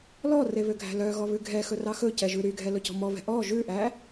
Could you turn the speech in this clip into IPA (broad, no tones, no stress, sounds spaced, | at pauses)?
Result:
l ɔ r e β ø ɡʱ æ̤ l œ ɣ ɔ β ʉ ɡʱ ɛ x ɵ r ɑ x ɵ c ɛ ʒ ʉ ɾ y ɡʱ ɛ l ɵ c ɔ̤ m ɔ β ɛ̤ ʔ ɔ ʒ ʉ ʔ æ